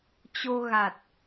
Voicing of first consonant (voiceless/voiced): voiceless